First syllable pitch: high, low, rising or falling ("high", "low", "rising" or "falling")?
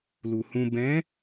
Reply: low